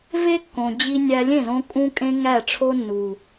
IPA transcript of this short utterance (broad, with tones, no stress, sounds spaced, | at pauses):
v e˦ kː õ˨ d͡ʑ i˧ nʲ æ˧ lʲ ẽ˦˨ z õ˧ kʼ ũ˦ kʼ ẽ˦ ŋ æ˦˨ ʈ͡ʂʰ o˦ nː u˨